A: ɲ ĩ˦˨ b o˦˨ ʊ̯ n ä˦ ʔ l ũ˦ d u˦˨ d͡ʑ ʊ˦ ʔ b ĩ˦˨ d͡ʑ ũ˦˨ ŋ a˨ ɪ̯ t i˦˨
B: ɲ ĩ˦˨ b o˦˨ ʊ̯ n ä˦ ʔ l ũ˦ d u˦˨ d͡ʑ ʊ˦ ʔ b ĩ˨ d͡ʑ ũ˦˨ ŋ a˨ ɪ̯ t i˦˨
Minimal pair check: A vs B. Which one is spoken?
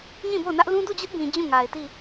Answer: B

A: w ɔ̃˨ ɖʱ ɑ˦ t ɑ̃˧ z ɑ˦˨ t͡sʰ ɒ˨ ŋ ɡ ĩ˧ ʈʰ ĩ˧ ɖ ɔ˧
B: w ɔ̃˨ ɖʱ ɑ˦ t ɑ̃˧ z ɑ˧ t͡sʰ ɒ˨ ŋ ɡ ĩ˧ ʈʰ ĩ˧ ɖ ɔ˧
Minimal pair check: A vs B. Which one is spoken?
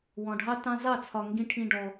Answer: A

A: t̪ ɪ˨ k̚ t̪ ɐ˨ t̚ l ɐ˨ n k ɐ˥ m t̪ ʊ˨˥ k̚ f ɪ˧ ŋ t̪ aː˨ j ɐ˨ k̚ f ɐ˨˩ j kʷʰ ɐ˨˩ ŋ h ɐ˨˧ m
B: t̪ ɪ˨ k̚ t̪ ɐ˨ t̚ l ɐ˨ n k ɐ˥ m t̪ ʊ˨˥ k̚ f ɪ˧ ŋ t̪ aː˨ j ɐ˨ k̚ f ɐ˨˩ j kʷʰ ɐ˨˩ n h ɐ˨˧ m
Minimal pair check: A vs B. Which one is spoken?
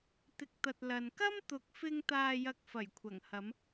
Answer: A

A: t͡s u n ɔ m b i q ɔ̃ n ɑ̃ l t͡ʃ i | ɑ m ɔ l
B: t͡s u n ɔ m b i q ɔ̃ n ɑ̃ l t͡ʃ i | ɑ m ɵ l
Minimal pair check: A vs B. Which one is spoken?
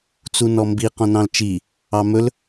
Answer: B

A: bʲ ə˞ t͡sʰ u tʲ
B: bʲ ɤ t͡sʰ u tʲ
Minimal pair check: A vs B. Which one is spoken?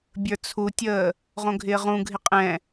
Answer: A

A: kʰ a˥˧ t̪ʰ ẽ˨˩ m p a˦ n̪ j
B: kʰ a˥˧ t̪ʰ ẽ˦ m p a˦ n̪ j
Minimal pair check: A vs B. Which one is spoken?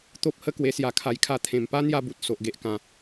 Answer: A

